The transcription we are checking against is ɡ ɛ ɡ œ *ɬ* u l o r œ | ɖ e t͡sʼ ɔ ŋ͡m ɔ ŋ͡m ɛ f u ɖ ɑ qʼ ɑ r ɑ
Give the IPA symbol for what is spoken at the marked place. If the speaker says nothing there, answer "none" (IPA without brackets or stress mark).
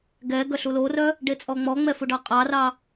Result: ɬ